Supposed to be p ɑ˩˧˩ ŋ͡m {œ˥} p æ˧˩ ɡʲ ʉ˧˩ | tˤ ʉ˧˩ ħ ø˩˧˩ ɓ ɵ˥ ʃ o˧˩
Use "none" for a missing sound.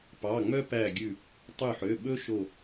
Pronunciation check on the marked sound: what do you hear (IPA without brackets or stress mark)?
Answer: œ˥